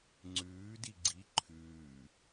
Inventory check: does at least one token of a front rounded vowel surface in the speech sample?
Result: no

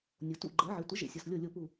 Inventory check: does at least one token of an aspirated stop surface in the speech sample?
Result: no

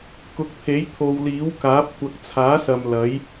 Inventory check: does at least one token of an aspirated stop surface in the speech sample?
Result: yes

